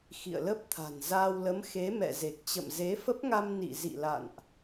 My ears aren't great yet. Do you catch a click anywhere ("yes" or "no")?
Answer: no